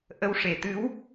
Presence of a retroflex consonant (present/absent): present